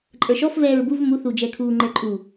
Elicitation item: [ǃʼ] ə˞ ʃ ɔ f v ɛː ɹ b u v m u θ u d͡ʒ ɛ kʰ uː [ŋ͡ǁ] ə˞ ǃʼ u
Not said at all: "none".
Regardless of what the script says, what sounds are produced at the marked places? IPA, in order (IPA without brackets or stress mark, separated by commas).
ǃʼ, ŋ͡ǃ